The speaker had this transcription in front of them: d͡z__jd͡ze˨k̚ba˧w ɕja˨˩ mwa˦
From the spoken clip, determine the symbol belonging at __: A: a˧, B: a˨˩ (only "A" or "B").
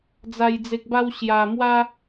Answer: B